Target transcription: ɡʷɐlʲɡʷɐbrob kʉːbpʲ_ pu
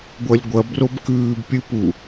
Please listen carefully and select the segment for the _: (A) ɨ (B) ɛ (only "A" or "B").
A